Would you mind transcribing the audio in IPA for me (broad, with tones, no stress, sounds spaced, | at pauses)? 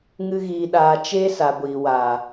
ŋ ɨ˦ ɣ iː˧ ɗ aː˧ t͡ʃ eː˦ s a˨ ɡʷ iː˨ w aː˨